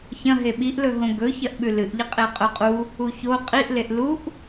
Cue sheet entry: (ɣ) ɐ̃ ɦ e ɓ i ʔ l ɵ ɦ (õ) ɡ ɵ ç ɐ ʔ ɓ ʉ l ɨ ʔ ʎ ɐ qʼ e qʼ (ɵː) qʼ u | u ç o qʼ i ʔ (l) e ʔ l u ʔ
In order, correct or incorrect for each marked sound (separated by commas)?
incorrect, correct, incorrect, correct